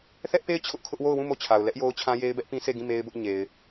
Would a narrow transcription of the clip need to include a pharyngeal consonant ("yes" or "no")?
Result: no